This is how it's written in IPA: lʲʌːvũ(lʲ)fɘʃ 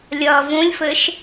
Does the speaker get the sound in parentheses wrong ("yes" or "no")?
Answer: no